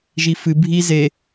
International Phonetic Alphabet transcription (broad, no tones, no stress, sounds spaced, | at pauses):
ʒ i f ɨ bʱ i z e